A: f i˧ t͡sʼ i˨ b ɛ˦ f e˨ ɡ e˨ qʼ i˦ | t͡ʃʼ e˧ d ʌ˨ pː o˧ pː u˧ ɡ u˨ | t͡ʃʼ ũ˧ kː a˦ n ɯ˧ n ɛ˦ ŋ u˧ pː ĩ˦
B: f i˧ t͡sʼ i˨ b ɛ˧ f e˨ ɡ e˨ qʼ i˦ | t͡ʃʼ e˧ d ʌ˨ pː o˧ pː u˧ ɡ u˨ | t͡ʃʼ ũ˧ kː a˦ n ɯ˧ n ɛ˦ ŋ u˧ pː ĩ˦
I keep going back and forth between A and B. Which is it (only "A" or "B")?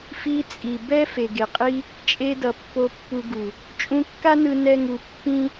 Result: B